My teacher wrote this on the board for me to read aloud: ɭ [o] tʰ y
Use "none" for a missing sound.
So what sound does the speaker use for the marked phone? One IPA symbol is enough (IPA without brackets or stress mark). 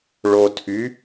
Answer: o